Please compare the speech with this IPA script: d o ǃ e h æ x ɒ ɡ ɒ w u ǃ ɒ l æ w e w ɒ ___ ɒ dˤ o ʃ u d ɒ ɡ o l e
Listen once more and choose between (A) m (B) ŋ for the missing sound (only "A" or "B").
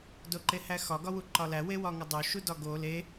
B